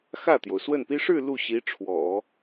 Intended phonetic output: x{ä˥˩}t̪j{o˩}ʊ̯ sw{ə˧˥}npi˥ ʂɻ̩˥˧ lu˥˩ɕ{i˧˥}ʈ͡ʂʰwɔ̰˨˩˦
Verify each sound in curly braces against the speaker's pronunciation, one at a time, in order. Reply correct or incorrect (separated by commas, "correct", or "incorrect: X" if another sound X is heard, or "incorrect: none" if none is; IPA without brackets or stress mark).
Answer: correct, correct, incorrect: ə˥˩, correct